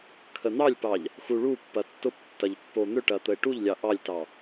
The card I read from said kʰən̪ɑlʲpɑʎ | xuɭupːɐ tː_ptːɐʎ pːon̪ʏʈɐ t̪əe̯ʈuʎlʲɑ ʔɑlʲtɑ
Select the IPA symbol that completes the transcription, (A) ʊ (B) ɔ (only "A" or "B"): A